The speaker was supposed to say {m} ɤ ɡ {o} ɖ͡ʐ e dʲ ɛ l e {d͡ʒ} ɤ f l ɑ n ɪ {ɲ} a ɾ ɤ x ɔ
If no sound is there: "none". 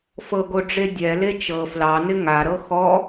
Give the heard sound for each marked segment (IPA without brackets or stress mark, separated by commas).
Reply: f, o, t͡ʃ, ŋ